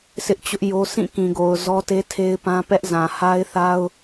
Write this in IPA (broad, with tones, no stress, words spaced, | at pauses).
sɪ˦ʔt͡ɕʊ˦ʔjo˦ sĩ˦˨kĩ˨ɡo˨ʊ̯ zɔ˦te˦tʰe˦ɪ̯pã˦ pɛ˦ʔ zã˨ha˦ɪ̯θa˦ʊ̯